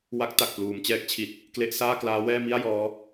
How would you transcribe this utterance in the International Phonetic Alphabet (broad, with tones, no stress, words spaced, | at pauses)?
wa˦˥k̚ ta˨˩k̚pluː˩˦mt͡ɕɛː˦˥k̚t͡ɕʰi˨˩t̚ | kle˦˥ʔsaː˥˩klaː˦˥wɛː˥˩ mi˥˩a̯ jɔː˦˥